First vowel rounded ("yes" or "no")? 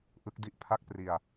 no